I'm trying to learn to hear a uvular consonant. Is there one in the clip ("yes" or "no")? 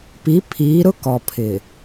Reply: no